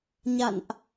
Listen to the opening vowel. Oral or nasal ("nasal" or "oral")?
oral